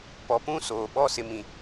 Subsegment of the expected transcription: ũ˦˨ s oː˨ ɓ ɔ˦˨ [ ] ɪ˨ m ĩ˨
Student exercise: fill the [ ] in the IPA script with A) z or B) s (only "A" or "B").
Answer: B